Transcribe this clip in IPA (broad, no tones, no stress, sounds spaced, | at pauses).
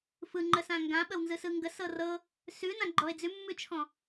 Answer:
f ɯ ŋ͡ǃ ə s ã ŋ ɡ ã ɓ ə w n z ɯ s ɯ ŋ ɡ ə s ɤ r ɤ | s ʉ n ã ɡ͡ǃ ɔ ɪ̯ d͡z ʉ mː ʉ t͡ʃʰ ɔ̃